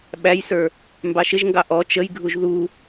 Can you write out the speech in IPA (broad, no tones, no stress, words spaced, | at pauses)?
ɓæjsə˞ | mbɑʃɪʒŋɡɑ ʔɔ t͡ʃəjɡʱuʒ ðu